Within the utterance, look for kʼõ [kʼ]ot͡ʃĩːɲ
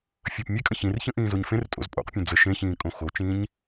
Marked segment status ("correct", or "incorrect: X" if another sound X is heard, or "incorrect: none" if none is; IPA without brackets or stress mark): incorrect: x